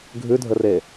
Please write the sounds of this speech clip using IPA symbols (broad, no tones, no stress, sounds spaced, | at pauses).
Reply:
ɡʱ ʉ dʱ ə r e